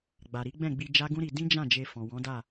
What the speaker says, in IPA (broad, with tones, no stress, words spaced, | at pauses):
ɡ͡ba˨ɾi˨˦ɡ͡bɛ̃˦˨ɡ͡bi˧ d͡ʒa˦ɡũ˦ɾi˧ dĩ˦d͡ʒã˦˨ d͡ʒe˧fɔ̃˨ wɔ̃˨˦da˦˨